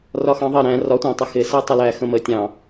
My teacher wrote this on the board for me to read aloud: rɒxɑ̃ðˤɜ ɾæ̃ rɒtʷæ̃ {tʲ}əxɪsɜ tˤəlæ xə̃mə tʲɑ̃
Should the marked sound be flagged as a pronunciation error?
yes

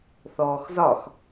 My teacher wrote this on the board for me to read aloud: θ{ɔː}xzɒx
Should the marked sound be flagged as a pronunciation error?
no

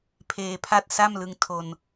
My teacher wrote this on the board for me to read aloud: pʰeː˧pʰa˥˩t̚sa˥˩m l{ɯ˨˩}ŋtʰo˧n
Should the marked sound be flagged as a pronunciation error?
yes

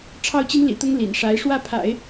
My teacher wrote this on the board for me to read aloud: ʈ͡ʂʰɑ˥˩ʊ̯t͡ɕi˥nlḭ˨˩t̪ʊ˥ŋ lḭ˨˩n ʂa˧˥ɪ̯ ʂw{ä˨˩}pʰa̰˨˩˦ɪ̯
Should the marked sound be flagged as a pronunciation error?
yes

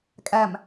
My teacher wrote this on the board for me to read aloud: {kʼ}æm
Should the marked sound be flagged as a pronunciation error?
no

